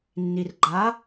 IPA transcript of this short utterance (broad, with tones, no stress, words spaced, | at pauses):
nːi˨r ɡ͡ǃa˨˦